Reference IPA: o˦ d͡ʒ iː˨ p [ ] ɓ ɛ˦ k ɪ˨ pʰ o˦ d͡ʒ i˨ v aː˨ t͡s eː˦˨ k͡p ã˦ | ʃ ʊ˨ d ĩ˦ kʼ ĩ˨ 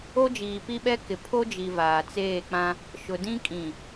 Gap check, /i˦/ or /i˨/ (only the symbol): i˦